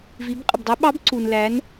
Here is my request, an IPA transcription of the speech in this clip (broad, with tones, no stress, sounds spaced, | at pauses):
v i˩˧ b qʼ ə˩ b dˤ æ˧˥ ɓ ɑ˧˥ b ǀ u˩ n l æ˩˧ n